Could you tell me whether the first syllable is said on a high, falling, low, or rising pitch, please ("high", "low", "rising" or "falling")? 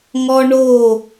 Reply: high